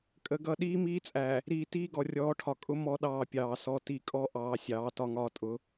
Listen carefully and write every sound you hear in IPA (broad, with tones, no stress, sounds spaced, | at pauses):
kʼ ə˨ ɡ ʌ˦˨ ɗ iː˦ m iː˦ t͡sʼ æ˨ | ɾ iː˨ t iː˦ ɡ ɔ˨ rʲ ɔː˨˦ ʈʰ ɒ˨ kʼ ʊ˦ m ɔ˦ ɗ ɑː˦˨ pʲ ɑː˨ s ɔ˨ t i˨ kʼ ɔ˦ ʔ ɑː˨ sʲ ɑː˨˦ t ɒ˦ ŋ ɒː˦ tʼ ʊ˨˦